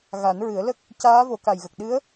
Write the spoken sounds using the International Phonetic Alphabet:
ɣ a˨˩˦ n ɹ ɨ˨˩˦ ə̯ l ə˦˥ k̚ | c aː˧˥ v o˨˩˦ k a˨˩ j ɣ ə˨˩ k̚ ɗ ɨ˧˥ ə̯

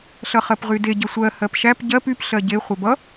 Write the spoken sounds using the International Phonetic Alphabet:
ɬ ʌ χ ɜ p ʁ y d e ɟ ʌ sʷ ɜ h ɜ p ʃ æ p ɟ ɜ p y p ɬ ɜ ɟ e χʷ ɛ b ʌ

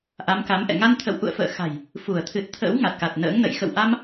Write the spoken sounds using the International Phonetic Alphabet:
ʔ a˨˦ m k a˨˦ m ʔ ɛ̰˧˨ ŋ a˧ n t̪ʰ ə̰˧˨ w ʔ ṵ˧˨ ə̯ f ə̰ː˧˨ x a̤˨˩ j | f u˧˩ ə̯ t̪ʰ ɨ˨˩ t̚ t̪ʰ ə̰ː˧˥ w ŋ a˨˩ t̚ k a˨˩ t̚ n ə̰ː˧˥ ŋ n ə̰˧˨ j x ə̰˧˨ w ʔ a˧ m

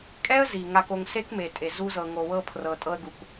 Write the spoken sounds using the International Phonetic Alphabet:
kʼ ɛ˦ ə̯ z i˨ ŋ a˧ k o˧ ŋ s e˦ k m e˨ tʼ e˨ z u˧ z ɤ˨ ŋ o˨ w ɤ˧ pʰ r ɤ˨ tʼ ɤ˧ ə̯ ɡ u˨ k

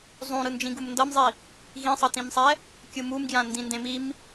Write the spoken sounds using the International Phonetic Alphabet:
zˤ ũ ɾ ɯ n d͡ʒ ĩ ɡ u m n d ʌ m zˤ i | ɣ ĩ sˤ ʌ t ĩ m sˤ ɛ | kʲ ɯ m u m ɡ j ã n d ĩ n d ẽ m i m

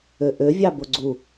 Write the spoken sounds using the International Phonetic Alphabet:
ø ʔ ø vʲ ɑ b o ɡ͡ǀ u

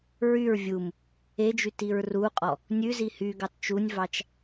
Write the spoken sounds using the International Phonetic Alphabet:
ɹ y ɹ vʲ u m | e d͡ʒ y t i ɹ r u qʼ ɔ | nʲ ʉ z i h y ɡ ɑ t t͡ʃ u nʲ v ɑ t͡ʃ

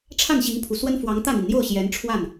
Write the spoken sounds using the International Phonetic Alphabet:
ʈ͡ʂʰ a˥˩ n ɕ i˧˥ ŋ pʰ u˨˩ s w ə˥ n f w ɑ˧˥ ŋ t̪ ä˥˩ n̪ i˩ n n̪ j o˥˩ ʊ̯ ɕ j ɛ˧˥ n ʈ͡ʂʰ w a˥˩ n

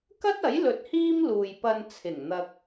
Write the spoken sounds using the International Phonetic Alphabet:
k ɐ˥ t̚ ɐ˨˥ j l ɵ˧ t̚ h iː˥ m l uː˨ j p ɐ˧ n t͡sʰ ɪ˨˩ ŋ n̪ ɐ˧ k̚

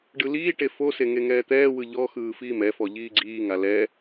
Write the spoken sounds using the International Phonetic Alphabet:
ɖ ɯ l iː ʈ e f o s e ŋ e ŋ ɛː t̪ ɛː w ɯ ʎ ɔ x ɯː f iː m ɛ f ɔ ʎ iː ɡ͡ǀ iː ŋ a l ɛ

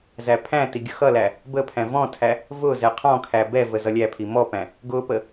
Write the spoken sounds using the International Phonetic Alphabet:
z æ pʰ æ̃ t i ɡʲ ʊ x ʌ l æ | b ə pʰ æ̃ v ɔ̃ tʰ æ | v ʊ z ɛ qʰ ɔ̃ kʰ æ b ɛ v ə z ʌ lʲ æ pʰ i m ɔ p æ̃ | ɡ ʊ p ə

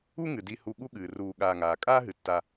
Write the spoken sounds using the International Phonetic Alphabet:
u˦ ŋ ɨ˩ d i˨ h u˨ ɠ u˥ ɠ ɨː˩ r uː˨ ɠ aː˨ ŋ aː˩ kʼ aː˥ ɦ ɨ˩ tː a˨

